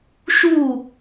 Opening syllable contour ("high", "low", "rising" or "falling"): falling